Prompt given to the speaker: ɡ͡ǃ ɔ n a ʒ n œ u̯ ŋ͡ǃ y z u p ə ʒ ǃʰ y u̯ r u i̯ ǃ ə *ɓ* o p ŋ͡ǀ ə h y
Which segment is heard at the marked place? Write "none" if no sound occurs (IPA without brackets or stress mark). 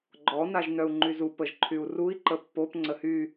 pː